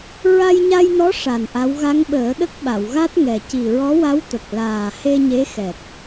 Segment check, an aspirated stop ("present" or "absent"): absent